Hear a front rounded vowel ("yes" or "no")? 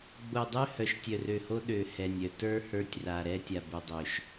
yes